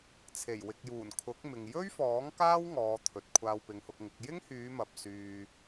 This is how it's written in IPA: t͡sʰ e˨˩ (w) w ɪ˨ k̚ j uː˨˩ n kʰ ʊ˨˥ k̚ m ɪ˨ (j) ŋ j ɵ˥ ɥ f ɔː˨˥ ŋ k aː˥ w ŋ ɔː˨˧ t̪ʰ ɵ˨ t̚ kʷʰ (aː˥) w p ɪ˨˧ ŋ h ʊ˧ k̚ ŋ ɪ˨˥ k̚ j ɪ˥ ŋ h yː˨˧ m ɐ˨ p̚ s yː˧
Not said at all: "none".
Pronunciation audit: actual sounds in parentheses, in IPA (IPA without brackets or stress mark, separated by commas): j, none, aː˧